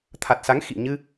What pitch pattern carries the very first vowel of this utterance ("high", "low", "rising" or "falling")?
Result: low